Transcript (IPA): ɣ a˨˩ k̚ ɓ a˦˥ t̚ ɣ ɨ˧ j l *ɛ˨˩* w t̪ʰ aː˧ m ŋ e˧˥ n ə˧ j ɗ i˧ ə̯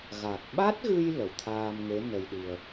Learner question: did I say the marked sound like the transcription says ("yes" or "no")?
no